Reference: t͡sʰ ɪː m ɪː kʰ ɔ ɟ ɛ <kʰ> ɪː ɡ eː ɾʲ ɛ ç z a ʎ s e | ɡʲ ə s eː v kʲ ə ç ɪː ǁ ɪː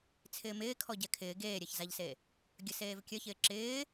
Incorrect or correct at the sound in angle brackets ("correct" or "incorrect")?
correct